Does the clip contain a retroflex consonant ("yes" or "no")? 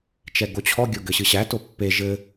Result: no